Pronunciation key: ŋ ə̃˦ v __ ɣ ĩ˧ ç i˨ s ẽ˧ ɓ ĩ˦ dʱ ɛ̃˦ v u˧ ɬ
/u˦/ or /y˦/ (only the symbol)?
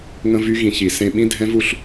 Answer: y˦